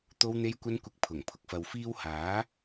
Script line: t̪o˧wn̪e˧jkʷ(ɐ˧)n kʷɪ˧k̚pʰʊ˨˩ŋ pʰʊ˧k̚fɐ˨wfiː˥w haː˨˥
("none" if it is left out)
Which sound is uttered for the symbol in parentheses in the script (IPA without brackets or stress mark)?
ɐ˧